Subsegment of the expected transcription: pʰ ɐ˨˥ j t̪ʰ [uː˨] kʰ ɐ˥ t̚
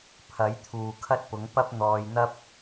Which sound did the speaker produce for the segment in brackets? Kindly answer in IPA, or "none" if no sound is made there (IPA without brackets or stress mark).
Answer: uː˨